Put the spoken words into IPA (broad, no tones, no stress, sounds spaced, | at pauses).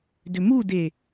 d ʏ m u d e